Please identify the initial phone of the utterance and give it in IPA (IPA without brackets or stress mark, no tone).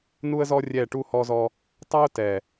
n